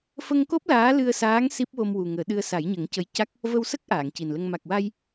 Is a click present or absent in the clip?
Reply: absent